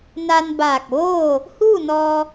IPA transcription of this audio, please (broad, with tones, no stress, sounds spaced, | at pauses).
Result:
n a˧ n b aː˧˩ k̚ ʋ oː˥˨ | h uː˥˨ n ɔː˧